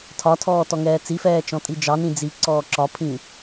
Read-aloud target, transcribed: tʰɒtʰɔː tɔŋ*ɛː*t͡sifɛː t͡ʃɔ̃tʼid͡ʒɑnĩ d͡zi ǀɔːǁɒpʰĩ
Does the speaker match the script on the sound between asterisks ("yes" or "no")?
yes